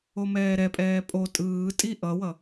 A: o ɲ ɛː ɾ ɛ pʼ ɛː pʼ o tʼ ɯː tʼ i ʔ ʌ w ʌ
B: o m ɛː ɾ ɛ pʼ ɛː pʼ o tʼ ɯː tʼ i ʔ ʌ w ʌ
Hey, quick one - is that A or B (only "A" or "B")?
B